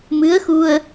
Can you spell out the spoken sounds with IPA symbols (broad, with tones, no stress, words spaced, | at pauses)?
mɨ˧˥ə̯xu˧ə̯